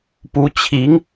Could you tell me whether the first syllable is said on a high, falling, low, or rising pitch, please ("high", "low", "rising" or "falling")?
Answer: rising